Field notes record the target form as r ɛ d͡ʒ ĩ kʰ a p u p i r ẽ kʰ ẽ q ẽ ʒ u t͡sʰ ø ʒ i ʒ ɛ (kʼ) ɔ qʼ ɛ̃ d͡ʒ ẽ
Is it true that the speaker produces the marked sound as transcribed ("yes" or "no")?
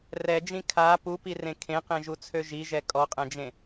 yes